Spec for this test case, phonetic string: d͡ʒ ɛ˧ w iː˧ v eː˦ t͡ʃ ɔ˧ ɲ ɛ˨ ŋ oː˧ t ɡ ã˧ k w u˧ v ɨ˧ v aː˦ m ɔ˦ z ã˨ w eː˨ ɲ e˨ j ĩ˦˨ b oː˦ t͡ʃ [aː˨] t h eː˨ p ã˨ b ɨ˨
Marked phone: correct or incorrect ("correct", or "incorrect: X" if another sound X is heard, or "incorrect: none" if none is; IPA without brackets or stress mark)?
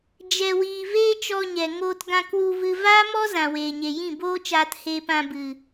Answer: incorrect: aː˧